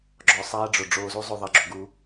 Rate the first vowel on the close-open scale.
mid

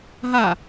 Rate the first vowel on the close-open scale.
open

